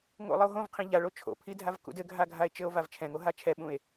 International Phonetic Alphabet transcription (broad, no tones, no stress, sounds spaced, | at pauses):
ŋ o̰ lˠ ɨ o̯ ɦ õ v qʰ ĩ ʎ a ɭ o t͡ʃʰ o̰ pʰ i dʱ a v k ṵ d ɘ ɡʱ a ɡʱ a e̯ t͡ʃ ɘ o̯ v a v t͡ʃʰ ɛ̃ ŋ o ɦ a t͡ʃʰ ɛ ɓ ũ e̯